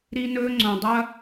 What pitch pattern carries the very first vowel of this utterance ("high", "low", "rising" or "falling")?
high